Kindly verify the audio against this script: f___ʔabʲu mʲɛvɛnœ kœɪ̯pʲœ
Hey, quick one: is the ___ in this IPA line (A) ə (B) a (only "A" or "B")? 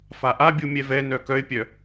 B